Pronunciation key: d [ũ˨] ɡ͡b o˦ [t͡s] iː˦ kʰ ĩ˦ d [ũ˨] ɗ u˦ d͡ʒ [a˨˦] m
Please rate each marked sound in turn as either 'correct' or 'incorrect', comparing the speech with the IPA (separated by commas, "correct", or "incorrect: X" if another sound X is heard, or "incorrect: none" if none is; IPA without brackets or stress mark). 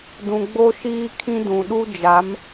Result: correct, incorrect: ʃ, correct, correct